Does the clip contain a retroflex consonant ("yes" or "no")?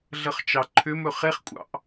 no